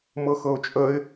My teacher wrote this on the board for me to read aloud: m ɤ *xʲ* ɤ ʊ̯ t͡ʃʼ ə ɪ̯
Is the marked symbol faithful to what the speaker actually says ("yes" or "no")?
no